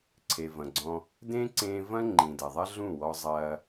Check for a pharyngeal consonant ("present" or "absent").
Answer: absent